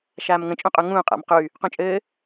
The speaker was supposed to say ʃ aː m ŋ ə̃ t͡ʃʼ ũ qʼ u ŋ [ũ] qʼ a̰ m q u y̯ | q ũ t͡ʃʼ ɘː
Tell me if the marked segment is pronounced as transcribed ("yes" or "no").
no